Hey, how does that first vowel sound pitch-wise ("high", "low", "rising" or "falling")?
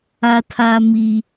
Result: high